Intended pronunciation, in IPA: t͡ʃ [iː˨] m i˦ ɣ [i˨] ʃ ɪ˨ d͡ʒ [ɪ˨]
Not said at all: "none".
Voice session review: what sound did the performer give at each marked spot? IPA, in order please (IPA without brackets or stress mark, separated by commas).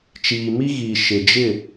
iː˨, i˨, ɪ˦˨